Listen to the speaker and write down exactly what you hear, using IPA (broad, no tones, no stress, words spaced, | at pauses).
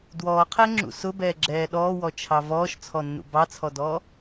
dwɔːqʰɛŋ͡ǁṵ sʊbɛːɡ͡ǁɛː ɗɔːwɔt͡ʃʰɑ vɔːʃt͡sʰɔnːṵ bɑt͡sʰɔdɔː